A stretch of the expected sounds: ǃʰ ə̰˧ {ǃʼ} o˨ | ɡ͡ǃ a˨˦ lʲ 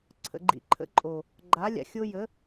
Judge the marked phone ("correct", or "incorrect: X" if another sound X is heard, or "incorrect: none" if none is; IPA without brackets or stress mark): correct